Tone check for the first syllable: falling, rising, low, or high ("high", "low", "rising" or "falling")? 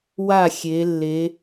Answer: falling